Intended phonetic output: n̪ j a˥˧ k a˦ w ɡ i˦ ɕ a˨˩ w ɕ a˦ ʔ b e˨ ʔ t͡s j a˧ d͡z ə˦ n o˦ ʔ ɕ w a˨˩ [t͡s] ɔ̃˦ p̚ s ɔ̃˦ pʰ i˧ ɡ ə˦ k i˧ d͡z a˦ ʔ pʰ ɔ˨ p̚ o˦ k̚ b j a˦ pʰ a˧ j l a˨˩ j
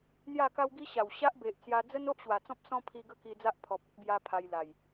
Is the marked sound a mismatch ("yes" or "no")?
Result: no